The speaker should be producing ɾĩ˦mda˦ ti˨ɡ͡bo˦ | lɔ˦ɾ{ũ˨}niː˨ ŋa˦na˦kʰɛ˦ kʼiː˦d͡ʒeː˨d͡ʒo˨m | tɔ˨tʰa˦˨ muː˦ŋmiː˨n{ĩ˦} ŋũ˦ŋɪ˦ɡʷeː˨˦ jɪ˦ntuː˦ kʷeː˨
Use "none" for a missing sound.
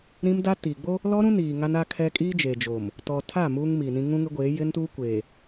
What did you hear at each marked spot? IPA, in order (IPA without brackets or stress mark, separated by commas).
ũ˦, ĩ˦